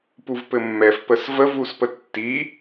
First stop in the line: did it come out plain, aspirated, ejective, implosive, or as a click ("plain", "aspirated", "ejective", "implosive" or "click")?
plain